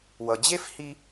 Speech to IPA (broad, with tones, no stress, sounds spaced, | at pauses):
w ʌ˨ d͡ʑ e˥ f h i˦